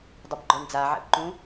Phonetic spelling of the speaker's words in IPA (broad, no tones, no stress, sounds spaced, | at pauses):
dˤ ʏ b ɡ͡ǃ ɔ ɳ d͡z a ʕ ɛ̰ b ǃ ũ